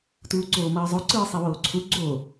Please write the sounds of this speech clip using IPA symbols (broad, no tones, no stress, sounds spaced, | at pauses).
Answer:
t uː ǀ oː m ʌː zˤ o ǀ ɯː sˤ i w oː ǀʰ u ɡ͡ǀ o